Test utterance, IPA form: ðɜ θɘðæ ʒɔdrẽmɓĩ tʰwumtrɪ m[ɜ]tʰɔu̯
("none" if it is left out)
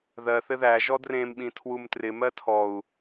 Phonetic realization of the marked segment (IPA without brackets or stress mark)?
ɜ